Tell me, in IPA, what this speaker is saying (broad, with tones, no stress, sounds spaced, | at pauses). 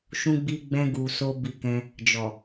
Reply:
ʃ ũ˧ ɡ͡b i˧ ɡ͡b ɛ̃˧ ɡ u˨ s o˧ b i˧ k ɛ̃˧ | d͡ʒ ɔ˨